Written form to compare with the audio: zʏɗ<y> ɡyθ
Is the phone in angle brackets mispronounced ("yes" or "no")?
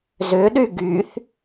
no